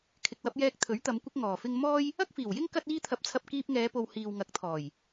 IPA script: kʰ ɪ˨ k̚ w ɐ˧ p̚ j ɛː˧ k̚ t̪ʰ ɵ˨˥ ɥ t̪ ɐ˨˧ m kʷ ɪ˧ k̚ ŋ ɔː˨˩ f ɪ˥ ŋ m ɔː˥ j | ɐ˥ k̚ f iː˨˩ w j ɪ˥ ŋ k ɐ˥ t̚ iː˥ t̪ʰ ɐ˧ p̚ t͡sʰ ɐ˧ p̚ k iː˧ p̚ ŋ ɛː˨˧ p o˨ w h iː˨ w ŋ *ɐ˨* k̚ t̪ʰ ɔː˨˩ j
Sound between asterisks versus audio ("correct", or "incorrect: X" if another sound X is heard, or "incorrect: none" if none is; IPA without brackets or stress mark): incorrect: ɐ˨˥